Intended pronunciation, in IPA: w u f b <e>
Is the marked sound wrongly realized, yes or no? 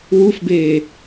no